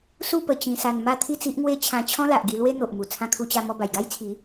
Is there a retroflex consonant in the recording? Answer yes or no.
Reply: no